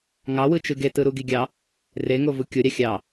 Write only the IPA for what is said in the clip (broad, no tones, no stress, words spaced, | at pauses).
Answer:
ŋɑwɯt͡ʃɯ ɡetɯɾuɡi ɡʲɑ | reŋovu kʲoɾʲɑ xʲɑ